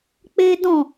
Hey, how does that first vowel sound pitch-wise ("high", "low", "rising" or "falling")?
high